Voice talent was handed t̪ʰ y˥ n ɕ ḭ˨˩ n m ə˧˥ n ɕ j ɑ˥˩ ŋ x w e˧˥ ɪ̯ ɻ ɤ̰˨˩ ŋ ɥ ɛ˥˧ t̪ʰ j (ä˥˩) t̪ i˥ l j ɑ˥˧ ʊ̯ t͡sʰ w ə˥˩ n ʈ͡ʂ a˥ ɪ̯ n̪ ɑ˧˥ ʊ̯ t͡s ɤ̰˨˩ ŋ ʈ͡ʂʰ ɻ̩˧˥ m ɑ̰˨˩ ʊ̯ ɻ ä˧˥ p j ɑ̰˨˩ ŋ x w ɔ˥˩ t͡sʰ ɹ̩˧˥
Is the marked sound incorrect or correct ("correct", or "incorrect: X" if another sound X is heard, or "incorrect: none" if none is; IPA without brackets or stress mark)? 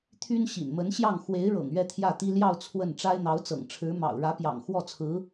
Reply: correct